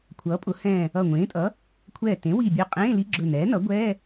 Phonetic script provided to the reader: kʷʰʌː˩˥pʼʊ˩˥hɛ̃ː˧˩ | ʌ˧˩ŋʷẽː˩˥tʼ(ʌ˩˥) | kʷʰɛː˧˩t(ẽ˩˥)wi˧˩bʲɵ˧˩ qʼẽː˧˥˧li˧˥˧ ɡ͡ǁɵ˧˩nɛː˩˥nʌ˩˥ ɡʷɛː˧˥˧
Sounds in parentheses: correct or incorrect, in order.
correct, correct

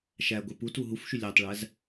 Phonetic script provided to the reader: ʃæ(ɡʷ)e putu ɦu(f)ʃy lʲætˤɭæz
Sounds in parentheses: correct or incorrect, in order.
correct, correct

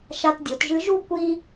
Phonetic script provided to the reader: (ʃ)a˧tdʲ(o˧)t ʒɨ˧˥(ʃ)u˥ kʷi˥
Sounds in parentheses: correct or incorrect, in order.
correct, incorrect: o˩˧, incorrect: ʒ

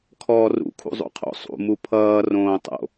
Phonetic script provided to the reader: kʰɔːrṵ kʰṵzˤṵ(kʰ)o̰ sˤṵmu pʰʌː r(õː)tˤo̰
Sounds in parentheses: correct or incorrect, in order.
incorrect: qʰ, correct

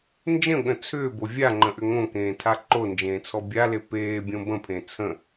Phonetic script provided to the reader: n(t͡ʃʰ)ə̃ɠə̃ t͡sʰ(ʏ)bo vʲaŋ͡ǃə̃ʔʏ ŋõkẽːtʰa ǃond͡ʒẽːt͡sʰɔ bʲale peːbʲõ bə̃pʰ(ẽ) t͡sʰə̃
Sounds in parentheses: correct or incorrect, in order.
incorrect: d͡ʒ, incorrect: ʏː, correct

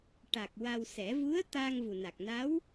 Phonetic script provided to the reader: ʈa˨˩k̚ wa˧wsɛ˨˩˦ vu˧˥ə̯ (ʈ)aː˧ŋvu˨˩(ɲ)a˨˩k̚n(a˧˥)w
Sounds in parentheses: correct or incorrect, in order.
incorrect: t̪, incorrect: n, correct

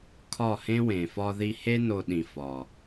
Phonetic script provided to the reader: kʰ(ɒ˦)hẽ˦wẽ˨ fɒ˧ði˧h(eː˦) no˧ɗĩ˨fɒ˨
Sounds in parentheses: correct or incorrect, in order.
incorrect: ɒ˦˨, incorrect: e˦

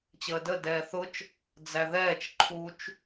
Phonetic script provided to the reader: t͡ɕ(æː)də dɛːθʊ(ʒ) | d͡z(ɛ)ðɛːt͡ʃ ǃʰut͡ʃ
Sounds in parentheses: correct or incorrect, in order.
incorrect: əː, incorrect: t͡ʃ, incorrect: æ

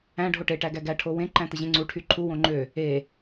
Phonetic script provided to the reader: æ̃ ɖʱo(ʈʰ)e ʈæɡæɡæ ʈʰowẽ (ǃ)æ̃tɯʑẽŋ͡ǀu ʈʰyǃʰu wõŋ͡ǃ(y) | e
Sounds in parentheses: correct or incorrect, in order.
incorrect: ʈ, correct, incorrect: ø

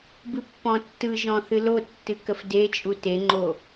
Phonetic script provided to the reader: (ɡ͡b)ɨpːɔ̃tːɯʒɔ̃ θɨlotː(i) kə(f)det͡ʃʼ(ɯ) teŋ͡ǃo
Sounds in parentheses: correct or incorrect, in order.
incorrect: b, incorrect: ɨ, correct, incorrect: u

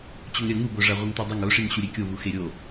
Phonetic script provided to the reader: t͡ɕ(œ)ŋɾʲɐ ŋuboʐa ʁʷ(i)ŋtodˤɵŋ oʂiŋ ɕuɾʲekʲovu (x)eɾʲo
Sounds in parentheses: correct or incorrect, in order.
incorrect: ɵ, correct, correct

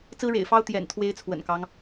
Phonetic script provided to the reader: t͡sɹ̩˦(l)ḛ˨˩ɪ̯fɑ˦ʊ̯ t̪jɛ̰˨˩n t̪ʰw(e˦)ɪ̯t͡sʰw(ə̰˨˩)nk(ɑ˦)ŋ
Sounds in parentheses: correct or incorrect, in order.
incorrect: ɻ, correct, correct, correct

